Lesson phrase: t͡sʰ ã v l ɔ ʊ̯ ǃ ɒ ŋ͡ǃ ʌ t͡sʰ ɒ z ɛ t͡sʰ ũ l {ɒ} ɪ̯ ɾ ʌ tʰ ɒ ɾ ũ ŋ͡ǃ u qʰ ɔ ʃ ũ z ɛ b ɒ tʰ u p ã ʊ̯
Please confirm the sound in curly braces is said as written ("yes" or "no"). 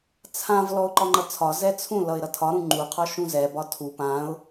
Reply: no